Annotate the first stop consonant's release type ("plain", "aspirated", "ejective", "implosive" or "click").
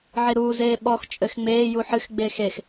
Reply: implosive